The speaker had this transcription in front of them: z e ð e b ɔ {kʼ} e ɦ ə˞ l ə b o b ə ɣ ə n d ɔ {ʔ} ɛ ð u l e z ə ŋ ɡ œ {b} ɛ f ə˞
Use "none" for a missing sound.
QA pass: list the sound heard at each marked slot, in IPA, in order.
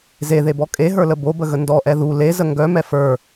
kʼ, ʔ, m

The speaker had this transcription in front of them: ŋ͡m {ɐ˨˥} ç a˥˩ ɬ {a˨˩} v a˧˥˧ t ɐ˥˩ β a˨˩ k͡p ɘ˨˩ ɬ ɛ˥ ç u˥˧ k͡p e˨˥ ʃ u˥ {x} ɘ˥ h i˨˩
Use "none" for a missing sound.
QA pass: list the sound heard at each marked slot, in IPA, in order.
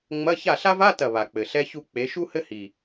ɐ˧˥˧, a˥, h

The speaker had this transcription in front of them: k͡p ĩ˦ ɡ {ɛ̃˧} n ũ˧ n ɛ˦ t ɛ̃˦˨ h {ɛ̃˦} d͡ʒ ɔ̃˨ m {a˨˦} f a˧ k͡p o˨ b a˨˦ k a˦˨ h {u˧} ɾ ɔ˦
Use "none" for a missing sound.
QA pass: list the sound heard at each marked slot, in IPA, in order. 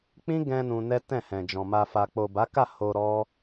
ɛ̃˧, ɛ̃˨, a˧, o˧

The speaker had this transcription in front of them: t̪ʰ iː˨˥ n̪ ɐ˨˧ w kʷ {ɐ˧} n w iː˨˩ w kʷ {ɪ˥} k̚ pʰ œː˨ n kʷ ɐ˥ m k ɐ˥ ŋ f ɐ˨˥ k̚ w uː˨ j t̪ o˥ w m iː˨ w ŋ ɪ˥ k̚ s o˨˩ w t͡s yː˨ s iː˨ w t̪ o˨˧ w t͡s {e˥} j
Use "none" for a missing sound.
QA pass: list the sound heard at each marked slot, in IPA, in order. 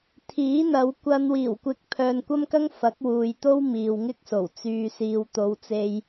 ɐ˧, ɪ˨˥, e˧

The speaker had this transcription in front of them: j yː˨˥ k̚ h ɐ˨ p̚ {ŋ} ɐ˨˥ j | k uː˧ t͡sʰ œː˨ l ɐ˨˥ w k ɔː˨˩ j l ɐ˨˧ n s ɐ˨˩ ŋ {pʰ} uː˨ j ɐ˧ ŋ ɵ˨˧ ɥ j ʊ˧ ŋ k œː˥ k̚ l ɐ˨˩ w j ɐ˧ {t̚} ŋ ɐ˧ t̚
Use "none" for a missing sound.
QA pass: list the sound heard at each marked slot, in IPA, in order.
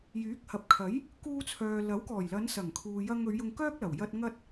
kʰ, kʰ, t̚

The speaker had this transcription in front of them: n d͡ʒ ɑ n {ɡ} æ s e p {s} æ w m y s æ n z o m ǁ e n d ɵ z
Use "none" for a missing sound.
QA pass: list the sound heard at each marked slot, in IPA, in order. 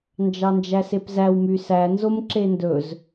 d͡ʒ, z

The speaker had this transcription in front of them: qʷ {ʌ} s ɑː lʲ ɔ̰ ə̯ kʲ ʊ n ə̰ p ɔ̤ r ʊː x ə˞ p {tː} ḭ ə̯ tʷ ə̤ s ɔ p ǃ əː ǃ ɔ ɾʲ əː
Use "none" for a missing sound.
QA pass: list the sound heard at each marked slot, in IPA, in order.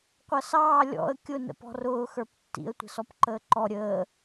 ʌ, tː

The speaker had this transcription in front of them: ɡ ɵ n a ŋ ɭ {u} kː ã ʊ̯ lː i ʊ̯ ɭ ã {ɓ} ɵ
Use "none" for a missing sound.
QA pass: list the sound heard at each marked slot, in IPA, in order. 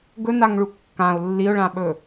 u, ɓ

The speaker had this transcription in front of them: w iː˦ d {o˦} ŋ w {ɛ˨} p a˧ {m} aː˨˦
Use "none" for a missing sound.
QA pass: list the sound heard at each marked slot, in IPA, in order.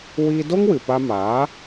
o˦, ɨ˨, m

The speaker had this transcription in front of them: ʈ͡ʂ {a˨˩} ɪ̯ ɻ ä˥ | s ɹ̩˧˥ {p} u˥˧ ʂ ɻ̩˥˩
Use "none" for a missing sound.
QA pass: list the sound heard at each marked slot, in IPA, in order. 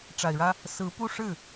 a˨˩, p

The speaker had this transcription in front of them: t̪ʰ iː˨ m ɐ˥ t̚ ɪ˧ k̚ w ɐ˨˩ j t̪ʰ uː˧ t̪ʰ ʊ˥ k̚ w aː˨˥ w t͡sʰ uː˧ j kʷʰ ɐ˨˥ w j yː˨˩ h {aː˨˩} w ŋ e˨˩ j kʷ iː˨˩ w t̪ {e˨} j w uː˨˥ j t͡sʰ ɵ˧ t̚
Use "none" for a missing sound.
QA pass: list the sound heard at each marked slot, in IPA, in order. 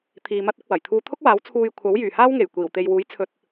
aː˥, e˨

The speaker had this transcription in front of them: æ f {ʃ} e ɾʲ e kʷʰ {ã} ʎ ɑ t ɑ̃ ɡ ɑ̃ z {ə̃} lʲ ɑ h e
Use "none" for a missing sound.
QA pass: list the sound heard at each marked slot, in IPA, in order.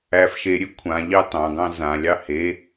ʃ, ã, ã

